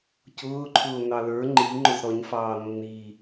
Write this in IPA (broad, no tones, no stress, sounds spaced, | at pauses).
c ʊː ǃʰ ʊː n ɑ l ə˞ ŋ͡ǃ i ŋ͡ǃ ʊ z ɾ ɔ ɲ f ɑː nː iː